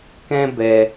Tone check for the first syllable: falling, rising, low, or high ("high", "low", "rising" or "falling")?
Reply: high